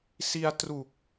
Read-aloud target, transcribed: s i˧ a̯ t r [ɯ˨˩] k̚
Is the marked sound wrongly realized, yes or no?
yes